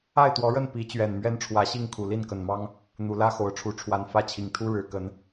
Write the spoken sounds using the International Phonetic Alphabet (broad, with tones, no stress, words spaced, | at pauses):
a˥˨ɪ̯t̪wɔ˨˦ɻə˥˨n pi˨˦t͡ɕɥɛ˨˩n mɥɛ˦nʈ͡ʂʰwä˨˦ɕi˥˨ŋ kʰu˨˩li˥˨nkə˨˩nmɑ˦ŋ | n̪u˨˦lä˦xo˨˦ʊ̯ʈ͡ʂʰu˨˦ ʈ͡ʂʰwa˨˩nfä˥˨ t͡ɕʰi˨˩ŋt̪ʰu˦ɻɻ̩˨˩ kə˨˦n